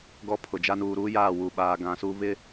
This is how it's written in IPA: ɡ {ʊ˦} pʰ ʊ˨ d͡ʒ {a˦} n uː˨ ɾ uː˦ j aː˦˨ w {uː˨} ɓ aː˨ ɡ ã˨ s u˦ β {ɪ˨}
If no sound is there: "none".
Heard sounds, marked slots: ɔ˦, a˦, u˨, ɪ˦

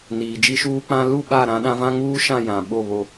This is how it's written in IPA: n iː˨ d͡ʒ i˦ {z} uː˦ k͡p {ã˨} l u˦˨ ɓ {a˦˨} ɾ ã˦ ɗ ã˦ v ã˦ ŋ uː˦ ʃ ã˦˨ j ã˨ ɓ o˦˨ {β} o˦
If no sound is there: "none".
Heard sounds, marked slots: ʃ, ã˦, a˦˨, β

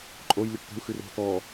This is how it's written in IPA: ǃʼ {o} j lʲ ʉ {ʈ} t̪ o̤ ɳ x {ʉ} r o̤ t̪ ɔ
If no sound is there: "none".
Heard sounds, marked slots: o, ʈ, ʉ

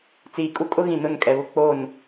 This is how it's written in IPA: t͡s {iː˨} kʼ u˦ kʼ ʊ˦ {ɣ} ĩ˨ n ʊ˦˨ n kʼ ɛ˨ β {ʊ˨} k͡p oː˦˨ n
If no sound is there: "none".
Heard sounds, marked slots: iː˨, ɣ, ʊ˦

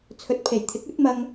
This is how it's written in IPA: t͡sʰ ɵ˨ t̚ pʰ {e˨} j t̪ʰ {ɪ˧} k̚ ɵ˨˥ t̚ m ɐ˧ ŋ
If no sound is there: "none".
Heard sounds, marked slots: e˨˩, ɪ˨˥

